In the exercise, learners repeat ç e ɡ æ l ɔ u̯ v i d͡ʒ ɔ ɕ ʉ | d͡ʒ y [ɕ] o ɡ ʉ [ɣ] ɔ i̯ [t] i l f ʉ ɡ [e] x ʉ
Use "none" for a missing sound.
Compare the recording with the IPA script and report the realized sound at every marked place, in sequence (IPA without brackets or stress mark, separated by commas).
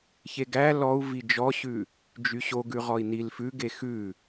ɕ, ʁ, n, e